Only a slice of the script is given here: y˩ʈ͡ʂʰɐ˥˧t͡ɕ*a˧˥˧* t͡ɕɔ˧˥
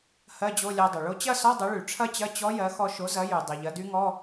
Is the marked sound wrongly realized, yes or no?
yes